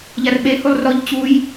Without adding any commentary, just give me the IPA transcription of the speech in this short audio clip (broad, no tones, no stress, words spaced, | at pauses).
ʎarɓe hulˠrɔʎ t͡ɕuj